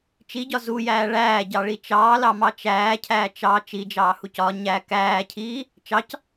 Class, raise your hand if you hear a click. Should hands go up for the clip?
no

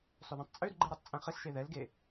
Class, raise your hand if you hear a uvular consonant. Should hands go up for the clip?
yes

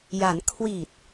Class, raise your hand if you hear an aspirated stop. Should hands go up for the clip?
yes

